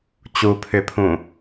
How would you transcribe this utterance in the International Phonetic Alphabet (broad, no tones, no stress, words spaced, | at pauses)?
t͡ɕupʰʏpʰũ